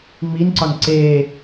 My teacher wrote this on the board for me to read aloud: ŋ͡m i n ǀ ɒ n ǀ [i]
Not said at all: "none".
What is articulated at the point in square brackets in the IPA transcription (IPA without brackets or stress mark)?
e